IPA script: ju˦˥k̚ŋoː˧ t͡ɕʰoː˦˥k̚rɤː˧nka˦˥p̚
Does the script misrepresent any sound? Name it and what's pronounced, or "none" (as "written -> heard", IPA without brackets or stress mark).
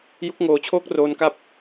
ɤː˧ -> oː˧